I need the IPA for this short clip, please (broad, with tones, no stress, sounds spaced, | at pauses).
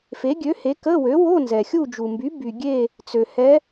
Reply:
f e˩˥ ɡʲ ø˩˥ h e˩˥ k ə˧˥˧ w ø˩˥ w o˧˥˧ n z ɛ˩ xʲ u˦˨ d͡ʒ u˩ m b y˩˥ b y˩ ɡʲ e˦˨ | t͡s ø˩ h ɛ˧˥